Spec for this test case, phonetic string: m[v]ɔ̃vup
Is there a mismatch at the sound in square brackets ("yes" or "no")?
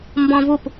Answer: yes